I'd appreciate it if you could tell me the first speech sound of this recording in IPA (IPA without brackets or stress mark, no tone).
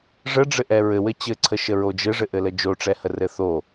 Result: ʐ